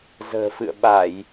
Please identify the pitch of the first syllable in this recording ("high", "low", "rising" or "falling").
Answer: low